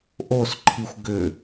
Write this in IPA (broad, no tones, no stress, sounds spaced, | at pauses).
ʔ o s ǃʰ i xʷ ɡ ʏ